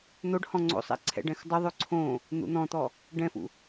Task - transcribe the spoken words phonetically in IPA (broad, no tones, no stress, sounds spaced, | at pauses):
n̪ o ɖ h ɔ̃ ŋ͡ǀ o̰ sˤ ɛ̰ ǀʰ ɛ̰ ɖ ɛ̃ x dˤ u ðˤ o ǀʰ õ | n̪ ṵ n̪ ɔ̃ t̪ ɔ | ɖ ɛ̃ f ṵ